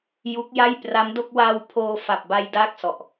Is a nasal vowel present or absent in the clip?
absent